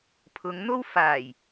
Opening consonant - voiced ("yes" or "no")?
no